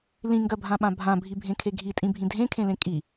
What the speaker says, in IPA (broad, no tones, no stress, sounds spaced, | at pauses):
l ĩ ŋ ɡ ɜ bʱ ã ɓ ã bʱ ã bʱ i bʱ ẽ kʰ e ɡʱ i tʼ ĩ bʱ ĩ dʱ ẽ kʰ ẽ l ẽ kʼ i